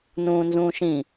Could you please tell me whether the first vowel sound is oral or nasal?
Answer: nasal